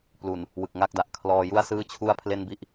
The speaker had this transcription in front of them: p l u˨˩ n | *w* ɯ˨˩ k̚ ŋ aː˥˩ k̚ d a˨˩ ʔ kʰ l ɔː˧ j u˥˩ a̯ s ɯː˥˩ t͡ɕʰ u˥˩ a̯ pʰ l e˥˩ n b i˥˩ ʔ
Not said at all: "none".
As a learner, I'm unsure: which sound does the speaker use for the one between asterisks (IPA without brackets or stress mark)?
w